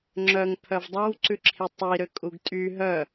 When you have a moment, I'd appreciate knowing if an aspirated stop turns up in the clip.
yes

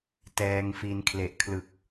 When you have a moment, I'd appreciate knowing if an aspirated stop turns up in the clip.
yes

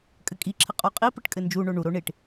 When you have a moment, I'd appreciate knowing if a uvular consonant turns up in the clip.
yes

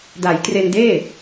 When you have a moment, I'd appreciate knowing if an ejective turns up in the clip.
no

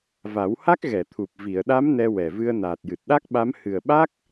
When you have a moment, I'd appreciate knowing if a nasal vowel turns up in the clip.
no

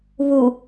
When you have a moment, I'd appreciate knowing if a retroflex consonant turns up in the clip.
no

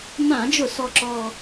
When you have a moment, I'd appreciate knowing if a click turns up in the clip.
yes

